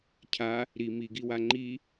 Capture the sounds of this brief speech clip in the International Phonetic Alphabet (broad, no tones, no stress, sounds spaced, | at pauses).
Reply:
cʰ a | ɾ i m i ɡ i w a ŋ͡ǃ i